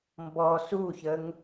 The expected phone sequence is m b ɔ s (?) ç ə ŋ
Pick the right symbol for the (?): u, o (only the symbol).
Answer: u